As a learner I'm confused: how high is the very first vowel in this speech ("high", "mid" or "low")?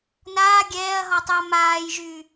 low